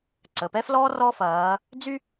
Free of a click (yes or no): no